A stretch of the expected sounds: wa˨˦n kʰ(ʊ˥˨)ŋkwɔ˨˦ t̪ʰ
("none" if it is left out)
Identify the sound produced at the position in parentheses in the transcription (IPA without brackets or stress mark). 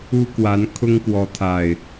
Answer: ʊ˦